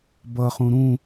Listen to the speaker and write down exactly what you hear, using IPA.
b ʌ χ ũ ɾ ũ

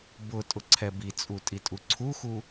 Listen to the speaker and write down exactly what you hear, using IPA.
b ʊ tʼ ʊ ǀʰ ɛ b i t͡sʼ u tʼ i tʼ u ǀʰ u x u

